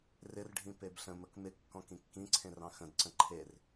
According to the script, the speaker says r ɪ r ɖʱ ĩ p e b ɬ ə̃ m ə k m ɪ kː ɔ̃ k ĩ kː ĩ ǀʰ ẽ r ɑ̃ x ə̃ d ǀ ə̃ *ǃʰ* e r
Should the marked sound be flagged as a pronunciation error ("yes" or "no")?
no